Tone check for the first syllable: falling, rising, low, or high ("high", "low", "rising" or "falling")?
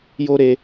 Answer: high